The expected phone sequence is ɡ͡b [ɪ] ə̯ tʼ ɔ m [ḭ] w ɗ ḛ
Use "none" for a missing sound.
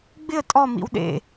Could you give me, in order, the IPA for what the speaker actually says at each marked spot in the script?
ɪ, ḭ

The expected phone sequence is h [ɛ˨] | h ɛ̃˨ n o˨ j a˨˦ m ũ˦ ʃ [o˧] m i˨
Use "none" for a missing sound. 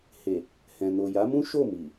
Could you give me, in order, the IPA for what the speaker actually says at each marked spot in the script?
e˨, o˦˨

